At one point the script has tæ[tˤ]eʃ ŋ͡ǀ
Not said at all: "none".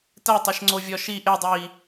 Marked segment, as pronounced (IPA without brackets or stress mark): tˤ